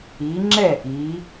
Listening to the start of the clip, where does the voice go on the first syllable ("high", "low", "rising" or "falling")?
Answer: rising